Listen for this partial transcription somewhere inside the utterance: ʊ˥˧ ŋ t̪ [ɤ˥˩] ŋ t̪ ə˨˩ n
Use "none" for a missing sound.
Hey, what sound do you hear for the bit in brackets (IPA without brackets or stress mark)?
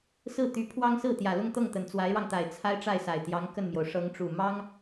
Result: ɤ˥˩